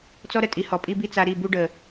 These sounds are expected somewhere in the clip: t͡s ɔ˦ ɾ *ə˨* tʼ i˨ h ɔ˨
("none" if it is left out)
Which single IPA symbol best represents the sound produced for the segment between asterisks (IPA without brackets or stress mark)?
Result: ə˨